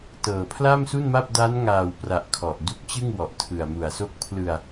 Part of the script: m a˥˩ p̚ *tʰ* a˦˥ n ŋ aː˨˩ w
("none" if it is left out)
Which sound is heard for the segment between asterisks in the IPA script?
d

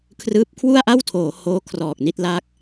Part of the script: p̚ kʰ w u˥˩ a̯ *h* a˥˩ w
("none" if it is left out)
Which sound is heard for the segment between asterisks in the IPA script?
ʔ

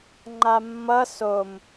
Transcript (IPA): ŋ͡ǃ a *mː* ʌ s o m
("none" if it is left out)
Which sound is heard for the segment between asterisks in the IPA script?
mː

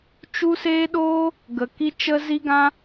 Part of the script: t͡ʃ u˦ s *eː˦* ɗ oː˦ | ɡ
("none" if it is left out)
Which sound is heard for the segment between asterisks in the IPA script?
eː˦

